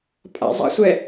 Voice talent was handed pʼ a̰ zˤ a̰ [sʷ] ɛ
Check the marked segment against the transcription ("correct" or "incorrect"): correct